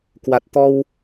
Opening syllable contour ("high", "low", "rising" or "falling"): low